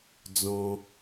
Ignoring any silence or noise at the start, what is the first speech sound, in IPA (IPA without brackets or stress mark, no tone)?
d͡z